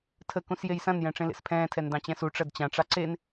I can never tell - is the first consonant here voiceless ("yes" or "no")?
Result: yes